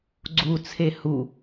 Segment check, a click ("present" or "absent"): present